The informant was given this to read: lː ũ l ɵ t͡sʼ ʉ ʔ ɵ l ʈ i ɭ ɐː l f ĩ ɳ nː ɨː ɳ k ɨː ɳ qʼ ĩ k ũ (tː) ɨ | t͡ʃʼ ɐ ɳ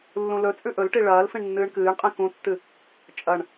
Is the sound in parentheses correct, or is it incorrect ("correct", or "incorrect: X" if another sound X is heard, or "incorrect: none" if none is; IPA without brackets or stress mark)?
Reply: correct